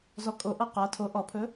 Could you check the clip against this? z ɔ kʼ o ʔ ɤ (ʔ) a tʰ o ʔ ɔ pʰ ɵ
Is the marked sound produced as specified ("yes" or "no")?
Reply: no